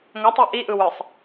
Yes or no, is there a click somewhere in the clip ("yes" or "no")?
no